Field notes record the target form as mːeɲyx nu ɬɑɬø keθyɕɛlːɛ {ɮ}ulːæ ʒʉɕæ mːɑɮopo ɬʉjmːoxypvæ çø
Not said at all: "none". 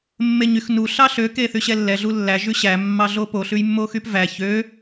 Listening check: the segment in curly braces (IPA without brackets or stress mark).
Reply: ɮ